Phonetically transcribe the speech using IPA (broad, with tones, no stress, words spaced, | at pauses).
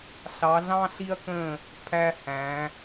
ɬɑ˨˦ɮɑ̃˦ ɬi˦ɐ̯kə̃˦˨ | pʰæ˦hæ̃˨˦